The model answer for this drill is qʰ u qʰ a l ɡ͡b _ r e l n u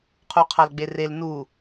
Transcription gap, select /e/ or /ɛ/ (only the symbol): e